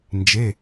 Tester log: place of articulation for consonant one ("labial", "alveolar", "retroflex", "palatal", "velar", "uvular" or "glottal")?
alveolar